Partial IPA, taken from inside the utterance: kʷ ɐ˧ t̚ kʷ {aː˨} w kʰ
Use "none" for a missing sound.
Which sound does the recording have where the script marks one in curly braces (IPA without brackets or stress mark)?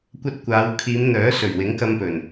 aː˨˧